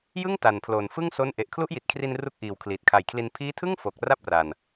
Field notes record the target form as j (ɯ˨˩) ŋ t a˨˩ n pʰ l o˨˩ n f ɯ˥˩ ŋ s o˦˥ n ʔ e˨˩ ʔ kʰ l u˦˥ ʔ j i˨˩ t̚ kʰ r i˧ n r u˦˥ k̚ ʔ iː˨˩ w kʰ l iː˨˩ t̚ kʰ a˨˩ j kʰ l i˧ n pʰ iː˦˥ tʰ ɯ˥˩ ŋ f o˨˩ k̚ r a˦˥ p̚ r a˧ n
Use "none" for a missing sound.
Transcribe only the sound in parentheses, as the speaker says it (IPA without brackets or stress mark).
ɯ˥˩